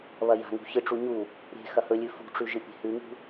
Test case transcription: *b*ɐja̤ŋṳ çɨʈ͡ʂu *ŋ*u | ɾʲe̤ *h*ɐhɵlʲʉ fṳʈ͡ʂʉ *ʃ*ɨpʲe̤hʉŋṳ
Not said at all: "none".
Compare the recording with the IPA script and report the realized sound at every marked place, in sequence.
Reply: β, ɲ, x, ʒ

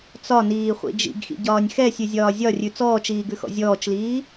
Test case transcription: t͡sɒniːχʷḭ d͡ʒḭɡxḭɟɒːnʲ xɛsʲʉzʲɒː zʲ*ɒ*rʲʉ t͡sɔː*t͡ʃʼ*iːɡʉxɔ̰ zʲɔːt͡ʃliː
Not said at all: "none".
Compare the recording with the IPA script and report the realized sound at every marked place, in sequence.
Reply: ɒ, t͡ʃ

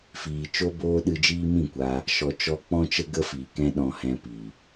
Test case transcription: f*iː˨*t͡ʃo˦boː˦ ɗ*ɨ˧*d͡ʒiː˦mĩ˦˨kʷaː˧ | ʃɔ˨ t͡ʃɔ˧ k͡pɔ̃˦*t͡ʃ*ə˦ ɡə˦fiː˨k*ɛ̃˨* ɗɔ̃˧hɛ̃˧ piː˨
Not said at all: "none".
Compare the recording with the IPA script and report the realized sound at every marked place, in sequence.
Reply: iː˨, ɨ˧, t͡ʃ, ɛ̃˦

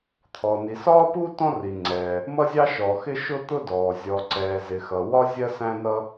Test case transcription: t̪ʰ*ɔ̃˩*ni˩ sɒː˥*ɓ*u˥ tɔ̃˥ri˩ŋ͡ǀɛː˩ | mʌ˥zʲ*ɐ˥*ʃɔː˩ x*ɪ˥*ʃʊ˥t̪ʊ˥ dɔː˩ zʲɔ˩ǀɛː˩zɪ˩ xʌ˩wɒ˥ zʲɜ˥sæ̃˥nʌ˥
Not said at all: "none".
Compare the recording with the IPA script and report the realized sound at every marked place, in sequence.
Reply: ɔ˩, p, ɑ˥, ɪ˥

